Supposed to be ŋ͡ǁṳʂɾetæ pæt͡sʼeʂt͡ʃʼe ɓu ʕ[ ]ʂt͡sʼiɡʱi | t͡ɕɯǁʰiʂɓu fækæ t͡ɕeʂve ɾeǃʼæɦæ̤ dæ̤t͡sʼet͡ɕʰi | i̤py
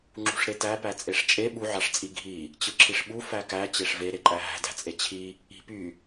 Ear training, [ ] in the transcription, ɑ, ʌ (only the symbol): ɑ